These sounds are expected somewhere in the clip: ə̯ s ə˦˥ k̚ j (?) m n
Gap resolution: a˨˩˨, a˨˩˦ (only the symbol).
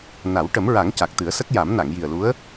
a˨˩˦